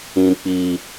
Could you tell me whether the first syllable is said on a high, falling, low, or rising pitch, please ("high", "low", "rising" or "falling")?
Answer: high